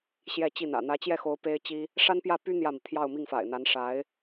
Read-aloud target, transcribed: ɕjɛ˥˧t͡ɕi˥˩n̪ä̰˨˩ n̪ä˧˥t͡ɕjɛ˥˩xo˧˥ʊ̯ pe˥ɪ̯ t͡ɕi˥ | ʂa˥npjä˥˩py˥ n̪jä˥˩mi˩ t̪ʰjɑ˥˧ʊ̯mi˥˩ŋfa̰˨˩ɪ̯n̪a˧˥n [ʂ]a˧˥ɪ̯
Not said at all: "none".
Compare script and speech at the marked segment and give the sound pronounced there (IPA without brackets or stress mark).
ʂ